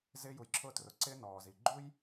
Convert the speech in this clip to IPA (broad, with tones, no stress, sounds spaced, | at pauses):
z ɪː˧ j u˩ j ǁʰ ʊː˧ t r ʊ˩ ǀ ɪ˧ n ɔː˩ z i˩ ɡ͡ǃ u˥ j